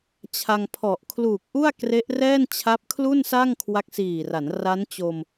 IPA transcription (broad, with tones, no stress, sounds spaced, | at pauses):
t͡ɕʰ a˧ ŋ pʰ ɔ˨˩ ʔ kʰ l uː˨˩ k̚ ʔ u˥˩ a̯ k r e˦˥ ʔ r ɛː˥˩ n t͡ɕʰ a˦˥ p̚ kʰ l u˥˩ n s a˥˩ ŋ kʰ w a˦˥ k̚ s iː˨˩ r a˩˦ n r a˦˥ n t͡ɕ o˧ m